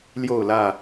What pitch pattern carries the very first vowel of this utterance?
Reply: falling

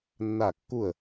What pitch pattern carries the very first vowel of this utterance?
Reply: falling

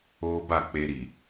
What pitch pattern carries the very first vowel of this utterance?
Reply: high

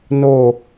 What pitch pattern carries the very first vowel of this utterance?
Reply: falling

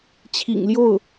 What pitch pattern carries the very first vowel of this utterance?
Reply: low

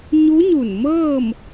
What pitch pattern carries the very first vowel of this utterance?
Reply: rising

